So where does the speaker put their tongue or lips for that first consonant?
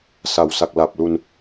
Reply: tongue tip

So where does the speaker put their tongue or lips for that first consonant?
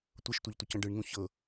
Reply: tongue tip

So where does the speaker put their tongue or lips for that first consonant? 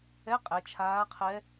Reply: uvula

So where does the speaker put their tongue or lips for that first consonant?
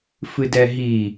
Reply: lips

